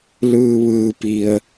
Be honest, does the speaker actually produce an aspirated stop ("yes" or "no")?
no